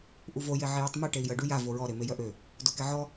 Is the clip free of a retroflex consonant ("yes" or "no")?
no